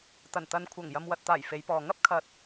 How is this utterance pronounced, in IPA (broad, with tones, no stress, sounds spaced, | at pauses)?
t̪ ɐ˨˩ n t̪ ɐ˨ n kʷʰ ɐ˨˩ ŋ j ɐ˨ m w ɐ˨ t̚ t̪ aː˨˩ j f e˨˧ j p ɔː˨ ŋ ɐ˥ p̚ kʰ ɐ˨ t̚